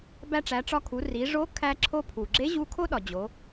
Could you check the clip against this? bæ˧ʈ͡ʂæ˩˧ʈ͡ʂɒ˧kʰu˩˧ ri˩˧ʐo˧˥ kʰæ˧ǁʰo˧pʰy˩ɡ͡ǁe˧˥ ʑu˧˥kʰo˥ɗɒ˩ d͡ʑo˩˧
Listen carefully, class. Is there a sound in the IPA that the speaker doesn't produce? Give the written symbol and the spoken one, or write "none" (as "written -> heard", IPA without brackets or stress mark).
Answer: y˩ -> u˩